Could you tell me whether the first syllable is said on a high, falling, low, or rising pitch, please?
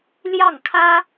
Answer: falling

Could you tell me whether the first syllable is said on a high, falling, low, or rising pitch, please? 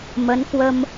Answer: rising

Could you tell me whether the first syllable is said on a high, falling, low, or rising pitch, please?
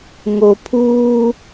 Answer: low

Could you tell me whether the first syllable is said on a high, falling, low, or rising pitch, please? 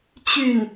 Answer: falling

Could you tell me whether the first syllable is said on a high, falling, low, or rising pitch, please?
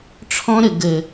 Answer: high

